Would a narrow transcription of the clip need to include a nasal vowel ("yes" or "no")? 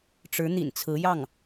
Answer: no